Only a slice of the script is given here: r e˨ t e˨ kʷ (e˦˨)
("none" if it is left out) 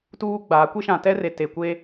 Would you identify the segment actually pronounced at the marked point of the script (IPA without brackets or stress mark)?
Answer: e˦